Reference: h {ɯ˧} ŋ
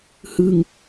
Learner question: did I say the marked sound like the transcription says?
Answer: yes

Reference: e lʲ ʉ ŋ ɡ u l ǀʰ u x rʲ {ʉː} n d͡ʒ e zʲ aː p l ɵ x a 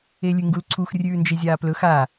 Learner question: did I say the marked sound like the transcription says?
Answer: yes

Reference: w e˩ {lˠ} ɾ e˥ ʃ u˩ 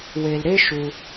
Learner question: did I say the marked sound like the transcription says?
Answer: no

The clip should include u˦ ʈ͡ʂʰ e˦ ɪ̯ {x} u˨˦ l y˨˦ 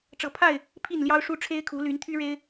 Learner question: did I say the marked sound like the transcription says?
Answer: no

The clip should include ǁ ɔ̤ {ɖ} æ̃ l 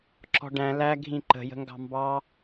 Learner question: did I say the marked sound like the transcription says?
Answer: yes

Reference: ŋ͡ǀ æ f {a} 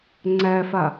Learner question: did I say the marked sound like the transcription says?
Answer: yes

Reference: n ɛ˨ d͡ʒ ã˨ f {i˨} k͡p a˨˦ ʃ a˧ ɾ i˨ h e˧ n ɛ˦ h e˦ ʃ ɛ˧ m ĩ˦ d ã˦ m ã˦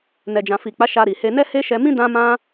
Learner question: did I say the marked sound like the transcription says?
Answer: yes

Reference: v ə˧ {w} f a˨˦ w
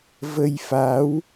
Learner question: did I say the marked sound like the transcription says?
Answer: no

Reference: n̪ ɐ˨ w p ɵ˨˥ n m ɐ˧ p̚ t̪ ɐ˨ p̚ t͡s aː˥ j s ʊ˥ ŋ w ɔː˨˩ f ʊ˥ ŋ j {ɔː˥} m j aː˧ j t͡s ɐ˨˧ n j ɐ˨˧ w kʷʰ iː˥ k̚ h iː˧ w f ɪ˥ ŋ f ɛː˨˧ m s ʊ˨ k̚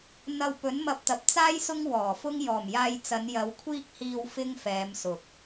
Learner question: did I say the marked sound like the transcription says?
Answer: no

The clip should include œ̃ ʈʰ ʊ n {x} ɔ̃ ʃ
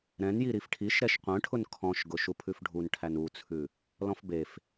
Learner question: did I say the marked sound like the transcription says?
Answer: no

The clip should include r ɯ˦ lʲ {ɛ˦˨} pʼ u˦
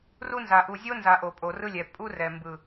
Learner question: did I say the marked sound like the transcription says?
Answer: no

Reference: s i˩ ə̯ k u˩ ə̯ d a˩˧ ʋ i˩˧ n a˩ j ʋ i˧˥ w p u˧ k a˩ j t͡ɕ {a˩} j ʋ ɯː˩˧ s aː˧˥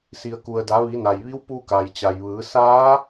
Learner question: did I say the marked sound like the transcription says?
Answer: yes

